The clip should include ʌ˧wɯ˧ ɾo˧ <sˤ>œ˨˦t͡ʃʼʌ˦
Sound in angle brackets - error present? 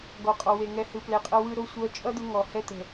yes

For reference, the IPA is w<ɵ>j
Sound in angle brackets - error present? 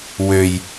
yes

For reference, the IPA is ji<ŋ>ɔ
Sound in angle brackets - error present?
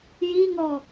no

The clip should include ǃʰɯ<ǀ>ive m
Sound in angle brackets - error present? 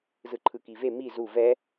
yes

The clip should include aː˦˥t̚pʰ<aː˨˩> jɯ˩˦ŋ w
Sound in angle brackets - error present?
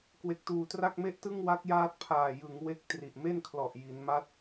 no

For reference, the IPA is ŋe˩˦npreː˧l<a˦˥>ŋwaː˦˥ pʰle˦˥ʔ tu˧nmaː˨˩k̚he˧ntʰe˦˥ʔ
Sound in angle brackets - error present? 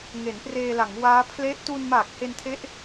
yes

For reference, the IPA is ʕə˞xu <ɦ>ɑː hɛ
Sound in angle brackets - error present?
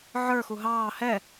no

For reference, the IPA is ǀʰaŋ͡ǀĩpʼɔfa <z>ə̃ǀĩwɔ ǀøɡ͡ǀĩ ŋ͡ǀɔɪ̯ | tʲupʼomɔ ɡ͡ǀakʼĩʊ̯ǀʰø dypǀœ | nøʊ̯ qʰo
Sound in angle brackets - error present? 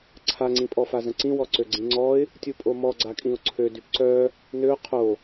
no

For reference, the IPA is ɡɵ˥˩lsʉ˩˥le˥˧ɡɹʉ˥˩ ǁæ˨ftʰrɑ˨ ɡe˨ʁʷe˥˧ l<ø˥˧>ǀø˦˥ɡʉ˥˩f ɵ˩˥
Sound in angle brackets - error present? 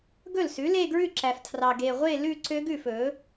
yes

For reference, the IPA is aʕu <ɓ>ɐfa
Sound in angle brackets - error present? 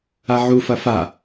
yes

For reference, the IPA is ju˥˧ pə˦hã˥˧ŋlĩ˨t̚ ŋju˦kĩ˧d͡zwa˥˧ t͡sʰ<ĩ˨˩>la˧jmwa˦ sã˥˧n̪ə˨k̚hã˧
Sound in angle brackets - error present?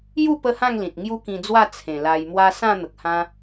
yes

